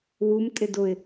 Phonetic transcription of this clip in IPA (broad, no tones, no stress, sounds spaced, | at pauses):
w u m tʼ ɪ d ʊ ɪ̯